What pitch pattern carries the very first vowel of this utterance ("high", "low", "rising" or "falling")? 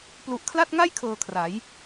low